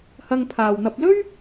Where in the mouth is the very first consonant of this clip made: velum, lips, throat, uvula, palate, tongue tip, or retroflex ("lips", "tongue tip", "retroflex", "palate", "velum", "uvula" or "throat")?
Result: throat